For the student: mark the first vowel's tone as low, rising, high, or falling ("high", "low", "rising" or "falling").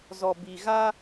low